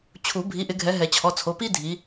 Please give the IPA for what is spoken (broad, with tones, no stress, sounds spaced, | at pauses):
t͡ɕʰ u˨˩˦ bʱ i˨˦ ʔ ɪ˨˦ ɡʱ ɛ˨˦ ɦ ɛ˨˩˦ t͡ɕʰ ɔ˩˧˩ t͡sʰ o˩˧˩ p i˥ dʱ i˨˦